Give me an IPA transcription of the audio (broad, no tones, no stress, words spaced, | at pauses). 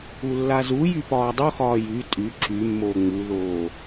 ulːazujy pɒːdˤoxɒː jy tʼy ǁymːo ŋ͡muðoː